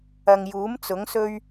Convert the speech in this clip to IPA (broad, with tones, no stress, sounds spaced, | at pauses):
ɐ˨ ŋ j uː˨˥ m t͡s ʊ˨˥ ŋ s ɵ˥ ɥ